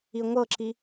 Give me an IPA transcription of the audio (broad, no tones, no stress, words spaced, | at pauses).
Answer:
iŋʷɤǁi